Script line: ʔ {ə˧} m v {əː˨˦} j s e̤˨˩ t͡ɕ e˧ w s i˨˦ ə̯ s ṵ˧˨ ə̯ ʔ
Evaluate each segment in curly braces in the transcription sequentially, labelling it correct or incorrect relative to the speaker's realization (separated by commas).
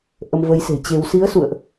correct, correct